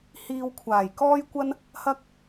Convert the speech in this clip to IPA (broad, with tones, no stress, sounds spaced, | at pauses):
h iː˧ w kʷʰ aː˨˩ j k ɔː˥ j kʷ ɐ˥ n | h ɐ˥ k̚